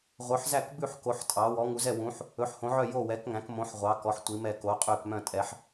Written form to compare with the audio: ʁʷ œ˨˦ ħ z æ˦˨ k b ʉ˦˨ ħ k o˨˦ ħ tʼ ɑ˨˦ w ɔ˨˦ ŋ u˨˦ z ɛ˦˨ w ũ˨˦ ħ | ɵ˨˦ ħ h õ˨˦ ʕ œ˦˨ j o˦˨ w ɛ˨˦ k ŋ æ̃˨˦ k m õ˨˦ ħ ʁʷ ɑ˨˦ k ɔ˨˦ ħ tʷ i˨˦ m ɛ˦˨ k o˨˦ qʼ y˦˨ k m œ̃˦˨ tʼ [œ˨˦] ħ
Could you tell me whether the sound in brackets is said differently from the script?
yes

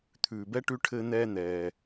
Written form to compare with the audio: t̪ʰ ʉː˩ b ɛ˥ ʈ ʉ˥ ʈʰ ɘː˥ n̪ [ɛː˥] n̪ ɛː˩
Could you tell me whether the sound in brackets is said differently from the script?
no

